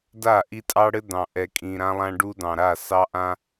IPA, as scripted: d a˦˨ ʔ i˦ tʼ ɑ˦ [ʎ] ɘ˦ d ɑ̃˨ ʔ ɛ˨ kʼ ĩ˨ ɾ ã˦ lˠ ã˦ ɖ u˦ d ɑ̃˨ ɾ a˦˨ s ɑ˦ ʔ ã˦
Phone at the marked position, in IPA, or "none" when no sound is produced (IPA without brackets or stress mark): ɽ